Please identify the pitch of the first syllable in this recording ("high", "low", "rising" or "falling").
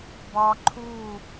high